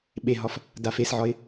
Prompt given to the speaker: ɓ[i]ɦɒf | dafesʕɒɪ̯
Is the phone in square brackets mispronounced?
yes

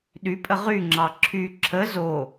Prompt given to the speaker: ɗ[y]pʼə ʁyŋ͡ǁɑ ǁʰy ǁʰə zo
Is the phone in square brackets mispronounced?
no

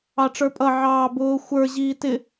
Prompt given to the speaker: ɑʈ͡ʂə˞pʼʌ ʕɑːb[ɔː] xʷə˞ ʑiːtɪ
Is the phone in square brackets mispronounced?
yes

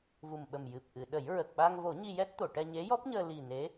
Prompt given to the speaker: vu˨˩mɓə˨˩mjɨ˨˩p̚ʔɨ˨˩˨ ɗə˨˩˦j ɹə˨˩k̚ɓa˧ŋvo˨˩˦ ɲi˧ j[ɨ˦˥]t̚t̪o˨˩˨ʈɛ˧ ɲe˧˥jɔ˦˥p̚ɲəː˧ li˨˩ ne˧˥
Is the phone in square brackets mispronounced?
yes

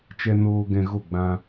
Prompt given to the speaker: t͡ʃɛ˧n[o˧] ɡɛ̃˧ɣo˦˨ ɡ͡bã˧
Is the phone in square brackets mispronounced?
yes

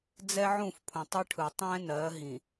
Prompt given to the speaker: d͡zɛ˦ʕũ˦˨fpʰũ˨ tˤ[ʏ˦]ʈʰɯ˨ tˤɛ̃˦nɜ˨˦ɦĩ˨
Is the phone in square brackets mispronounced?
no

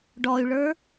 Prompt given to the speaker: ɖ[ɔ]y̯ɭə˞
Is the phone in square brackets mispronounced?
no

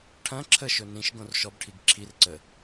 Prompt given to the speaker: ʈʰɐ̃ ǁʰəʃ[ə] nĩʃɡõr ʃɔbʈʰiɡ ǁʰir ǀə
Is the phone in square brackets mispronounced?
yes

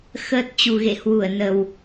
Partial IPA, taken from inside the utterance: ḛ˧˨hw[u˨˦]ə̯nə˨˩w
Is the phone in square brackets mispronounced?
yes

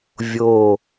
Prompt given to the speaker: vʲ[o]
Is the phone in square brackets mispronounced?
no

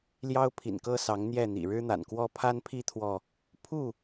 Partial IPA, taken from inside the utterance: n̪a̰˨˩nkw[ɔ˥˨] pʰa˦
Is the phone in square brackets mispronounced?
yes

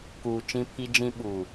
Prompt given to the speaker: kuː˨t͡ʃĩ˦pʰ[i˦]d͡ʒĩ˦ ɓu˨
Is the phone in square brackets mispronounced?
no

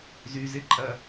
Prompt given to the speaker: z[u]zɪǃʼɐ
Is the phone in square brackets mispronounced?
yes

